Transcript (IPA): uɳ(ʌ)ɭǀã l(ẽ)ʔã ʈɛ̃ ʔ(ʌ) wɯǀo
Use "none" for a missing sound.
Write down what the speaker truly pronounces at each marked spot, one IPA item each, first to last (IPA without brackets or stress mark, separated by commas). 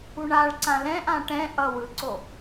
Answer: a, ɛ̃, ʌ